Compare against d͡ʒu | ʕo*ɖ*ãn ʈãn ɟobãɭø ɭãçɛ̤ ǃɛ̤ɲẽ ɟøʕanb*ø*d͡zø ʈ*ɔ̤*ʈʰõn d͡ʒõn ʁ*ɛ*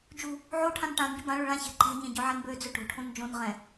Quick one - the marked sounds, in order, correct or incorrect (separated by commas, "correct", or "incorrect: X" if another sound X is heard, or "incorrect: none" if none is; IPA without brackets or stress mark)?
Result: incorrect: ʈʰ, correct, incorrect: o̤, incorrect: ɛ̃